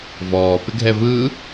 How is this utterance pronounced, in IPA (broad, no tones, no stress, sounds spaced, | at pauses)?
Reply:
v ɔː p ɪ ɡʱ ɛ v ɯ